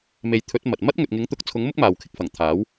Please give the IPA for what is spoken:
me˨˥jt̪ʰɵ˨˥t̚ mɐ˨t̚ mɐ˥t̚ŋɵ˨t̚ŋɪ˨˥ŋ t̪ʊ˨˥k̚t͡sʰʊ˨˥ŋmʊ˥k̚ maː˨wkʰɪ˧k̚fɐ˨˩ŋt̪ʰaː˨˥w

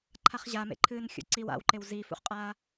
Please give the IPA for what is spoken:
ǃʰaχʑa mḛǃʰɨːnxʲṵǀiw a̰wǃew ziːfṵχqʼaː

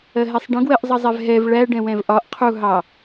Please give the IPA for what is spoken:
ɜɦɛsˤɖə̃ ɡwɜʔzˤʌzˤɛvɦɛv ɭæ ɖɛ̃wɛ̃vʔɒʔ qʰu ɦɑ

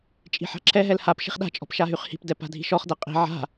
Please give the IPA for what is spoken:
t͡ʃʼi̤ħa̤ǁʰɛɦɛl hap ʃi̤χɗa̤t͡ʃʼɔ̤p ʃaɦyχhi̤pdɛ pa̤dʱi̤ʃɔχdɛ qʼi̤ ʕa̤

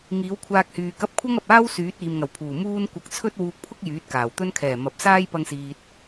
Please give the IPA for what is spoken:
ŋiː˨˥wkʷʰaː˧k̚hyː˨kɐ˥p̚ kʷʰɐ˥ŋɐ˨p̚aː˥w syː˨˥t̚iː˨mŋɐ˨˩wpʰuː˨˩ muː˥n kʷɐ˧k̚ t͡sʰɵ˥t̚wuː˧k̚pʰʊ˥k̚ jyː˨˥t̚kaː˨˩wt̪ɵ˥n kʰɛː˨˩mɐ˨p̚saː˥j pɐ˥ŋsiː˧t̚

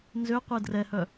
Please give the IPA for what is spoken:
nzøqʷɛ drɛhœ

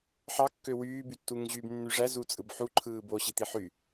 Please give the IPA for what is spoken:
ħɑkːø wyːby tːuŋʑyːbnːyʐæ zut͡sʼɯbħu ǃʰɯːboɕit̪i ħy

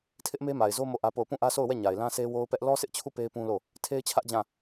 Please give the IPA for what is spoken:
tʰɪ˦ʔme˦ma˨ɪ̯zo˦ mo˦˨ʔä˦po˦˨ʊ̯ pũ˦˨ʔä˦so˦˨ʊ̯wɛ˦˨ ɲa˨ɪ̯lã˦sʰe˦ wo˦ʊ̯pɛ˦ʔ lɔ˦sɪ˦ʔt͡ɕʰu˦˨ pe˦ɪ̯pũ˦lo˦˨ | tʰe˦ɪ̯t͡ɕʰä˦ʔd͡ʑã˦˨

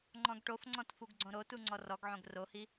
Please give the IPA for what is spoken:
ŋ͡ǃɔ̃ɡʈofŋ͡ǀɔ̃t fuɡɡ͡ǀõɾotu ŋ͡ǀɔrɔɡʕõɡ rohi

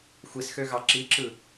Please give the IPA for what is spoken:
xʷisxøɣɑ ǁiǁɯ

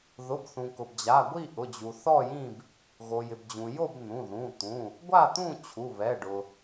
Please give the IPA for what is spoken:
ðʊ˩˧˩bθũ˩ kʊ˩bd͡ʑa˩˧˩ ɡʷi˥˨ ʔʊ˩˧˩d͡ʑu˩ θɔ˥˨jĩ˥˨b | ɣo˩jɪ˩bd͡ʑũ˩jo˥˨b n̪ũ˩˧˩ðũ˩˧˩t̪ũ˩˧˩ | ɡʷa˥˨t̪ũ˥˨ t͡ɕʰu˩˧˩βɛ˩˧˩ɖʊ˩

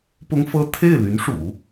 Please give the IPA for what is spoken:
pʊ˥ŋfɤ˥˧ t̪ʰe˥˩ɪ̯ly˧˥n ʂṵ˨˩˦

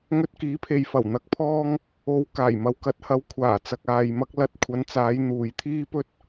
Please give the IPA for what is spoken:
ŋɵ˧t̚kiː˨˥pʰe˨jfɐ˨˩w n̪ɐ˨k̚pʰɔː˧ŋ | o˨˧w kaː˨˩jmɐ˨w kɐ˨˥t̚hɐ˨˧w kʷʰaː˨˩t͡sɐ˨k̚ aː˧jmɐ˥k̚ lɐ˧t̚kʷʰɐ˨˧nt͡saː˨˧j n̪uː˨jt̪ʰiː˥pɵ˥t̚

